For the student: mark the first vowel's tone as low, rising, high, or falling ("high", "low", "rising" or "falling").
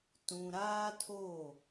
low